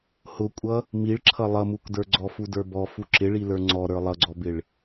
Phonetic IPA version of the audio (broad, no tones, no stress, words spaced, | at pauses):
hʊkʷʼʌ | miɭǁʰʌ lˠʌmukdə˞ ɡ͡ǀɔfudə˞bɔ fuǁɪɭilə˞ ŋ͡ǀɔ ɾə˞lˠʌɡ͡ǀɔbɪɭ